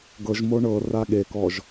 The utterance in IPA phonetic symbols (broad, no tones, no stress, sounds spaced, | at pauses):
ɡ ɤ ʒ m o ɳ ɤ r a ɠ e k ɔ ʒ